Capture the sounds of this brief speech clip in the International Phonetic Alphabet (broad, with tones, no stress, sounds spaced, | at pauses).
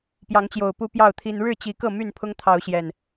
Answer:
p j ɑ˨˦ ŋ t͡ɕ j o˨˩ ʊ̯ p u˦ p j ɑ˥˨ ʊ̯ t̪ʰ i˦ n ɻ ɻ̩˥˨ t͡ɕ i˨˦ k ɤ˥˨ m y˥˨ n pʰ ʊ˦ ŋ t̪ʰ ɑ˨˦ ʊ̯ ɕ j ɛ˨˩ n